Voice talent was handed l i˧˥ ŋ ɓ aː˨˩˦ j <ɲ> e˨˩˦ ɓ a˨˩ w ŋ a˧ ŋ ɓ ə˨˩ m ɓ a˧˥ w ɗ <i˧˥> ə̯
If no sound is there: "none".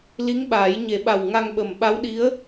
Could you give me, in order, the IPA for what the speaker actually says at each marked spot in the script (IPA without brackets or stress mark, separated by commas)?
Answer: ɲ, i˧˥